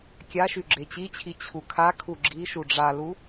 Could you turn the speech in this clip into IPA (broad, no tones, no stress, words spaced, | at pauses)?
kʲaʃy ɡ͡ǁet͡ɕit͡ɕʰi t͡ɕʰukʰakʰu ɡ͡ǁiʃu ɖ͡ʐalu